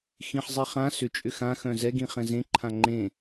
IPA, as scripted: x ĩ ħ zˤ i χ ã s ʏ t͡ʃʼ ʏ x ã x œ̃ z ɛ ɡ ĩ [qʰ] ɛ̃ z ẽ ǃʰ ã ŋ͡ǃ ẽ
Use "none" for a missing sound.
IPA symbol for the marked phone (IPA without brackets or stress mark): χ